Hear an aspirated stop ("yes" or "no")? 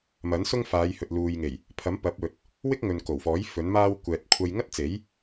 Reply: yes